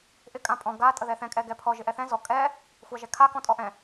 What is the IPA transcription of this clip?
ʔ ɪ kʼ ã pʼ ɔ̃ ɡ a tʼ ə ð ɛ θ ɛ̃ kʼ ɛ ɡ ɛ pʰ ɔ ʒ ɪ ʔ ɛ θ ɛ̃ z ɔ kʼ ɛ | xʷ a ʒ ɛ kʰ a k ɔ̃ tʼ ɔ ʔ ɛ̃

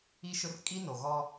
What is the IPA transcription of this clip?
i˦ ʃ ʊ˦ r kʼ i˦ n o˨ ɣ ɔ˦

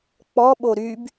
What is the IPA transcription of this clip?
k͡p ɔ ɓ o ɾ y b

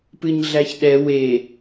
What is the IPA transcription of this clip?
p ɨ ɲ ɮ æ ç ɗ ɛ w e

